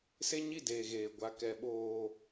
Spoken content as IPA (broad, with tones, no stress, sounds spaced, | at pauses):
s e˦ ɲ i˦˨ d eː˨ ɣ eː˨ ɡʷ a˨ k ɛ˨ ɓ oː˨